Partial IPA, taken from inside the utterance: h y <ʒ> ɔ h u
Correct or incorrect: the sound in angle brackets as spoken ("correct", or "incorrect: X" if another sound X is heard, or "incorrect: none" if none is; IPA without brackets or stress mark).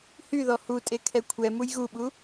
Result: incorrect: ð